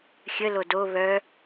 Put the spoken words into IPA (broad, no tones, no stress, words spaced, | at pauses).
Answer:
xʲəlo do βœ